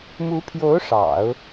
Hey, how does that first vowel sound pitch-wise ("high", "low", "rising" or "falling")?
rising